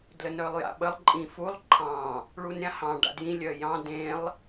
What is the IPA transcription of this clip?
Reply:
d l ə n œ lˠ j a̰ ɓ ə lˠ ǃʼ ĩ f u lˠ ǃʰ ɑ̃ | ɭ u n ɾʲ ã h ɑ̃ ɖ a̰ d j ĩ lʲ œ j ɑ̃ d ẽ lˠ

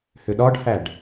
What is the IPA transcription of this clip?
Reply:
h ʏ ɗ ɒ ɖ h æ ɖ

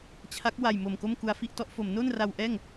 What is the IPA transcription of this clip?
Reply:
t͡ɕʰ a˦˥ k̚ w a˨˩ j m o˨˩ m k o˥˩ m k u˧ a̯ f i˥˩ ʔ t ɔ˦˥ ʔ f o˩˦ m n o˥˩ n r a˧ w ʔ ɛː˥˩ ŋ

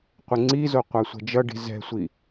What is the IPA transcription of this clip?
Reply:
qʷ ɛ ŋ͡ǀ i z o qʷ a sʷ ɛ̤ d͡ʒ ʌ ɖ i̤ z ɛ̤ sʷ i

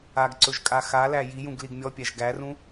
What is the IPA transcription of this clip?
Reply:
a ɡ ǀ ɵ ʒ kʼ a x a l æ j i j ũ ɡ l i ɡ mʲ ɔ pʲ æ ʒ ɡ æ r ũ

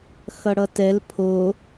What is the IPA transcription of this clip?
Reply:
x ʌ ɽ ʌ t ɛ l pʰ o

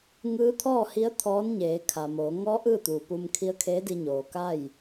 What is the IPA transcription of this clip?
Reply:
ŋ ɯː˧˥ t̪ʰ ɔː˥˨ h i˧˥ ə̯ t̪ʰ ɔː˧˥ n ɲ eː˩˧ kʰ a˩ m oː˩˧ ŋ ɔː˧˥ ʔ ɯː˥˨ t̪ uː˩ p u˧ m kʰ i˧˥ ə̯ kʰ eː˧˥ d i˧ ɲ oː˩ k a˥˨ j

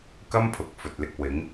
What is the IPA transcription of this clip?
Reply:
k ɐ˥ m pʰ ʊ˨ k̚ f ɵ˨ t̚ l ɪ˧ k̚ w ɪ˨˥ ŋ

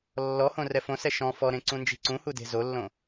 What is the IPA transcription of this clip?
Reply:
lː ɔ h õ r ɛ f õ s ɛ ʃ ɔ̃ f ɔ ɾ ẽ ǀ ũ n d͡ʒ i̤ ǀ ũ h u d e̤ z o lː õ

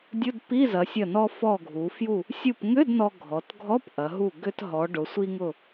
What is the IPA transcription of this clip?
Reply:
dʲ ʊ˧˥˧ d p i˧˥˧ z ɐ˩˧ sʲ ɐ˧˩ n ɔ˧ f ɔ˧˩ ɡʱ u˩˧ f j u˧˩ | sʲ u˧˩ p ŋ ʏ˧˥˧ d n ɔ˧ ɡʱ ɔ˩˧ t ɡʱ ɔ˧˥˧ p ʔ ɐ˩˧ ɦ u˧˩ ɡ ʏ˧ t ɦ ɔ˩˧ ɖ ʊ˩˧ sʷ i˧ ŋ ʊ˧˩

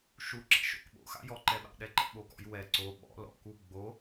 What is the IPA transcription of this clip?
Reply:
ʃ u ǁ ɛ̰ ʃ o̰ k ɓ o̰ x a̰ j ɔ ǃ ɛ ɓ a̰ ɗ ɛ ǃ ɛ̰ ɓ o k ɔ̰ j w ɛ ǀ o ɓ ɔ̰ l ɔ̰ k u ɡ͡b o

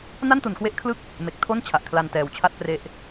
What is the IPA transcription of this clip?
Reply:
n a˥˩ n t u˩˦ n k w e˦˥ ʔ kʰ l ɯ˥˩ k̚ | m e˨˩ k̚ tʰ o˥˩ n t͡ɕʰ a˨˩ ʔ kʰ l a˧ n t ɛː˨˩ w t͡ɕʰ a˥˩ t̚ p r e˦˥ ʔ

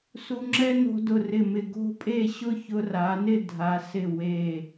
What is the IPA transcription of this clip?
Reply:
s u˧ ŋ͡ǁ ɛ˥ n o̤˧ d ʊ˧˩ r ɪ˧˩ m ɪ˧˩ ɡ o̤˥˧ pʼ e˥˧ ɕ ʊ˥˧ ç ʊ˧ r a˩˧ n ɪ˥˧ dʱ a˩˧ s ɪ˧˩ w e˧˩

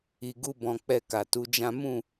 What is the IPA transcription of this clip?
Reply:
i˨ ɡ u˧ b ɔ̃˨ k͡p ɛ˧ k a˨ t u˨˦ d͡ʒ ã˦ m ũ˦˨

